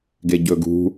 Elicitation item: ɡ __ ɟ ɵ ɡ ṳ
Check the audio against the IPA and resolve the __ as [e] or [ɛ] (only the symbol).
e